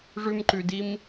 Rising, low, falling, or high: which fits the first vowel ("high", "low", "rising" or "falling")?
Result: high